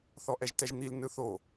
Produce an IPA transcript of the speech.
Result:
θ ɔ ʔ ɛ ʒ t ɛ ʒ n̪ i l n ɯ θ o

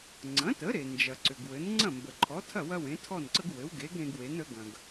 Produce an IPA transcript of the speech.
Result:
ŋ͡ǀ ɐ̃˩˥ t ə˩˥ ɾ e˩ n d͡ʒ ɐ˩ ǀ ʏ˩ ɡ w ɘ˩˥ n ŋ͡ǀ ɐ̃˥˩ m b ə˩ ǃʰ ɔ˩˥ tʰ ɐ˥˩ w ɐ˥ w ẽ˩˥ tʰ ɔ˥˩ n ǀ ə˥ ɡ w ɘ˩˥ w ɡ e˩˥ ɡ ɾ ẽ˧ ɡ w e˩˥ n ə˩˥ ɡ ɐ̃˩ ɡ

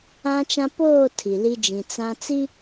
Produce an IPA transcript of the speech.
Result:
ã˦ t͡ʃ ã˦ p oː˦˨ tʰ i˨ l i˦ d͡ʒ ĩ˨ t͡s ã˦ t͡s i˦

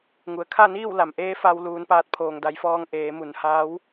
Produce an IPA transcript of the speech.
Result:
ŋ u˩˧ ə̯ kʰ a˥˨ n iː˥˨ w l a˩ m ʔ eː˧˥ f a˧ w l uː˩˧ n p aː˧˩ t̚ pʰ oː˩ ŋ d a˩˧ j f ɔː˧ ŋ ʔ eː˩˧ m u˩˧ n h aː˧˥ w

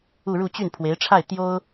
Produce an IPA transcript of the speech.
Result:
u˥˧ ɻ u˥˧ t͡ɕ y˥˩ n pʰ w e˧˥ ɪ̯ ʈ͡ʂʰ a˥˩ ɪ̯ t̪ j o˥ ʊ̯

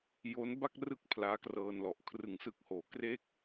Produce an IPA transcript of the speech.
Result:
j o˦˥ n b a˥˩ k̚ r ɯ˦˥ k̚ pʰ l aː˦˥ k r ɤː˧ n l ɔ˨˩ ʔ kʰ r ɯ˩˦ ŋ s ɯ˨˩ k̚ h oː˩˦ k r e˥˩ k̚

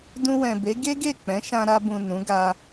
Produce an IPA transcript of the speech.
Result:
d ũ˧ w ɛ̃˨ b e˨˦ ɡ e˦ ɡ e˦˨ k͡p ɛ̃˨˦ ʃ ã˧ ɾ a˧ b ũ˨ n ũ˨˦ ɡ a˧

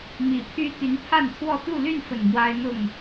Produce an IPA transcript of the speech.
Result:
m i˨˩ pʰ y˦ t̪ y˨˦ n pʰ a˥˨ n t̪ʰ w ɔ˥˨ t̪ u˥˨ l y˥˨ n f ə˨˩ n m w a˦ ɪ̯ n̪ ʊ˥˨ ŋ

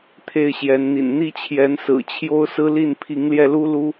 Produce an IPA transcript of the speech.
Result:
t̪ʰ e˥˨ ɪ̯ ɕ j ɛ˨˦ n n̪ ḭ˨˩ n n̪ i˦ t͡ɕʰ j ɛ˨˦ n s ɹ̩˨˩ t͡ɕʰ j o˦ ʊ̯ s ɹ̩˦ l i˥˨ n pʰ i˨˦ ŋ l j ɛ˧ l u˦ l u˦

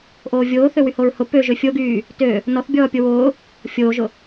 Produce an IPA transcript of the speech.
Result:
ʔ oː vʲ oː θ ø w y h o ɹ h ʊ p ø ʒ ø fʲ o ɡ yː | t ø | n ɔ θ bʲ ɔː pʲ o w ʊː | fʲ oː ʒ ʊ

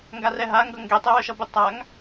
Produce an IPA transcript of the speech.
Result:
ŋ ɡ a r ɛ ɦ a ŋ ɡ ʌ ŋ ɡ e tˤ ɛ w œ ʃ ʌ b ɪ tˤ a ŋ

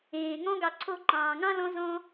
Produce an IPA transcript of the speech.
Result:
ẽː˩ ŋ ɔ̃˦ ɡ ɑ˨ ǀʰ o˦ ǃ ɑ̃ː˩ ŋ ɑ̃˥ l ɔ̃˦ z ɔ̃˦

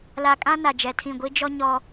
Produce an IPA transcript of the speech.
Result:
l a˨ kʼ ã˦ n a˨ d͡ʒ ɛ˨ tʰ ĩ˦˨ ɡʷ i˦ d͡ʒ ɔ˦ ɲ ɔ˦

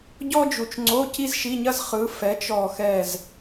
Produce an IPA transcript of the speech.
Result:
ɟ ɔ˥ d͡ʒ u˧˩ t͡ʃ ŋ͡ǀ o˧˥˧ c i˥ z ʃ i˧˥˧ ɲ ɐ˥ z χ ɯ˨˦ f ɛ˨˦ t͡ʃ ɔ˧˩ x ɛ˧˩ z

